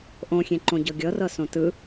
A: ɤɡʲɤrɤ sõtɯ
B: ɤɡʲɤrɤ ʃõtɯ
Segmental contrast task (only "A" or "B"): A